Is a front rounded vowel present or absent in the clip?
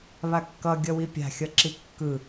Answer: absent